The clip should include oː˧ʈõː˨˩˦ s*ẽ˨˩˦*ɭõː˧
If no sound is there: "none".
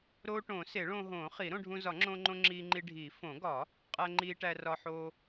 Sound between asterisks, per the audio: e˨˩˦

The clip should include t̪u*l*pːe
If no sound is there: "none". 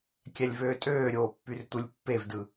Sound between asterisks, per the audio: lʲ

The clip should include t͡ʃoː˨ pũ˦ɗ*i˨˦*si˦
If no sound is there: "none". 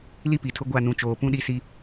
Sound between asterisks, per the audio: i˦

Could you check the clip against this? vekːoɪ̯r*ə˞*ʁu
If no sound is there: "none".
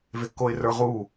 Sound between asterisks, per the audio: ə˞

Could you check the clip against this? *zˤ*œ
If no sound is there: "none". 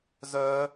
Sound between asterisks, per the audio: z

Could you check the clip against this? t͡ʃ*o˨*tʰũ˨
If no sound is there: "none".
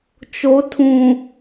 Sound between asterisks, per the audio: o˨˦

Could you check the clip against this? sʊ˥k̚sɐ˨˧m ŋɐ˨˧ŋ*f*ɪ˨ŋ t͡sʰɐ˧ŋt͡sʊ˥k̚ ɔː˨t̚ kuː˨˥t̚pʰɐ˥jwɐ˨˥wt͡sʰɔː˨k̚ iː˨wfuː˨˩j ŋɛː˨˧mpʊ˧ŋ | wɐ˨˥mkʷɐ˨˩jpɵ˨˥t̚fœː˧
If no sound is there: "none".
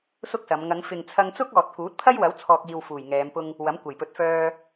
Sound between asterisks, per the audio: f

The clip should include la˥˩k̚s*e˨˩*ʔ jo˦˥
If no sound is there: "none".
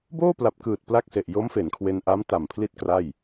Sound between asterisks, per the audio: e˨˩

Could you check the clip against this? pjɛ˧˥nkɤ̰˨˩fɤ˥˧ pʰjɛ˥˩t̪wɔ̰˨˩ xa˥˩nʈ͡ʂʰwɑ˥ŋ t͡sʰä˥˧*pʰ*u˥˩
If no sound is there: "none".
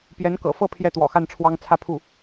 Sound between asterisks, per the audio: pʰ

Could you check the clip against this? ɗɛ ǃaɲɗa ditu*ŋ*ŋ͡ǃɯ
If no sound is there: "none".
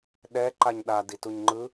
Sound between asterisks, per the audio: ɲ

